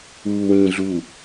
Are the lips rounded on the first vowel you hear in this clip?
yes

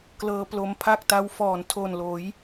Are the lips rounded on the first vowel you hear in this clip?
no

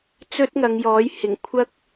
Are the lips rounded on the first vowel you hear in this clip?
yes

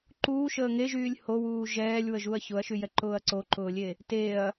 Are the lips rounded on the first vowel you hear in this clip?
yes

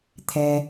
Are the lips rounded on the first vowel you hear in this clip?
no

